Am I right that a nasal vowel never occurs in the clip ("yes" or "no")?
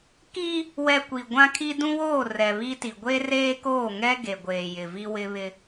no